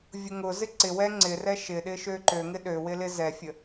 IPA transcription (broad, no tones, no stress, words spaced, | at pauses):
vʲʊŋʊzɪ ǀɪwɛ ŋ͡ǀɪ rɛʃɪɗɪ ʃøǃøŋɪ ɗøwɪ lɪzɛfʲə